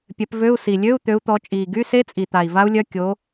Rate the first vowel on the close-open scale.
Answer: mid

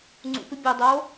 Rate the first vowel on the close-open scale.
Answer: close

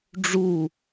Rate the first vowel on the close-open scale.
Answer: close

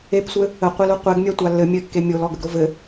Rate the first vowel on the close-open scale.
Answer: mid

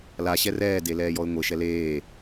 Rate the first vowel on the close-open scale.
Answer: open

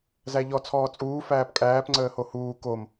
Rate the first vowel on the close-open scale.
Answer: open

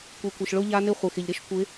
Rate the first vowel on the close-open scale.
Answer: close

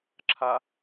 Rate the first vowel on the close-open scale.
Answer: open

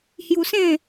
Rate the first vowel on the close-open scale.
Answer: close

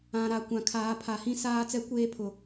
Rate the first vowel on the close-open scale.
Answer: open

